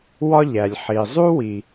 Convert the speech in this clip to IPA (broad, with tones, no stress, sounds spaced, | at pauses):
w ɒ˥ ʎ æ˩ lʲ ħ i˩ zˤ u˥ w i˩